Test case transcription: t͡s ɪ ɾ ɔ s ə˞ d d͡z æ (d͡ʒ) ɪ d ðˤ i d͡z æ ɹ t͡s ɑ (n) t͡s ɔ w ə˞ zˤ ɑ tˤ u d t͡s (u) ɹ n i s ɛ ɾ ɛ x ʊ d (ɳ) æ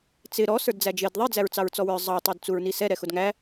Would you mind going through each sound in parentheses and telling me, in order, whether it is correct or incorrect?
correct, incorrect, correct, incorrect

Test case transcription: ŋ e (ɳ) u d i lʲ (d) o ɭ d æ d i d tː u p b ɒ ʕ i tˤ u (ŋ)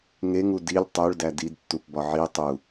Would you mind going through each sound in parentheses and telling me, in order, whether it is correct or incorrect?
incorrect, incorrect, incorrect

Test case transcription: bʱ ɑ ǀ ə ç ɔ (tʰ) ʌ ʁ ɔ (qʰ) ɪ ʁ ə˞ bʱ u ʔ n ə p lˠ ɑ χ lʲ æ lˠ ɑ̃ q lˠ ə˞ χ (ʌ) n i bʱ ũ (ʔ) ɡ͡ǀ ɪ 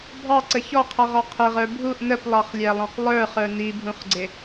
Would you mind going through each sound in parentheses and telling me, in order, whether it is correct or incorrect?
incorrect, correct, incorrect, incorrect

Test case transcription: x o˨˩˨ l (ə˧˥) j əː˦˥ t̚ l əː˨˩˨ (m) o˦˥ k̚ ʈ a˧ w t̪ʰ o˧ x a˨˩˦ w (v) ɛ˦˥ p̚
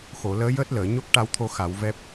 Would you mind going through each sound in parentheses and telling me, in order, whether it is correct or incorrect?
incorrect, incorrect, correct

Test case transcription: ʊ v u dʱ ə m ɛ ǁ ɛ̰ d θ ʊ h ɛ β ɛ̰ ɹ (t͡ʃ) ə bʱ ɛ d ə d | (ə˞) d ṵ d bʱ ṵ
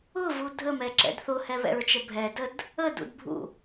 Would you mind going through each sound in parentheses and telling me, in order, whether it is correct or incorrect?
correct, incorrect

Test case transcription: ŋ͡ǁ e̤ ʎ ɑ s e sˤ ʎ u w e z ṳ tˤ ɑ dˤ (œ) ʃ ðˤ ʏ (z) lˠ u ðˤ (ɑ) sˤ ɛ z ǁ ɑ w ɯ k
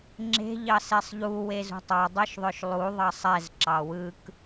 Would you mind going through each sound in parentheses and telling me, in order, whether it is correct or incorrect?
correct, incorrect, correct

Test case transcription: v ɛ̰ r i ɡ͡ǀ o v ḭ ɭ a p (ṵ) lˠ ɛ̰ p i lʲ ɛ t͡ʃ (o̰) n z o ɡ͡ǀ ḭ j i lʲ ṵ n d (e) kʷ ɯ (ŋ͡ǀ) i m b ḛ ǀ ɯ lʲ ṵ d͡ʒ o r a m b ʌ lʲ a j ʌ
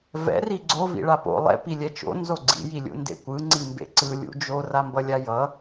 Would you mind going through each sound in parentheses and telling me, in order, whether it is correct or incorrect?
incorrect, correct, incorrect, correct

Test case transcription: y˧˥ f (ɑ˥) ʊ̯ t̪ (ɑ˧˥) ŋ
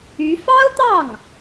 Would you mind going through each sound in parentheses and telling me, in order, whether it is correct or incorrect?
correct, incorrect

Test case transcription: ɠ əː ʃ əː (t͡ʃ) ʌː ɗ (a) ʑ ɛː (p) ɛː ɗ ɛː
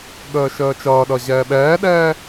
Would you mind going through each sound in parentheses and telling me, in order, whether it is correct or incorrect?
correct, incorrect, incorrect

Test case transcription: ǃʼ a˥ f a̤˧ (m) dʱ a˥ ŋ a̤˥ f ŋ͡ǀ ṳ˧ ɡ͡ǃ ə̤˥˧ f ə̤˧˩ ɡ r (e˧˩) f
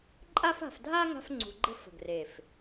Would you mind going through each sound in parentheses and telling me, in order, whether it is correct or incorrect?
incorrect, correct

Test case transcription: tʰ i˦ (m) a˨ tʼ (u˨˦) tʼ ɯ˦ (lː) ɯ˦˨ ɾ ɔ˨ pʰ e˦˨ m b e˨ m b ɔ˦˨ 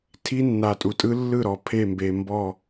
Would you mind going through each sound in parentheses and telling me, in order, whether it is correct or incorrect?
incorrect, incorrect, correct

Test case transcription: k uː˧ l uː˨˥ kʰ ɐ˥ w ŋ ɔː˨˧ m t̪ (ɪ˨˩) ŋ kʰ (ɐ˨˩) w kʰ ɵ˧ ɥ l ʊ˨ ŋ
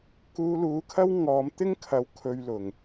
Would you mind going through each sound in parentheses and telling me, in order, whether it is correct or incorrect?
incorrect, incorrect

